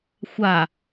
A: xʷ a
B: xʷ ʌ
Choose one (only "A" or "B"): A